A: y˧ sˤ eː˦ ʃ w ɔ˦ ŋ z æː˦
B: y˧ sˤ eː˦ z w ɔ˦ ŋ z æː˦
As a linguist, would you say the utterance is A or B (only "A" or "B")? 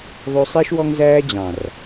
A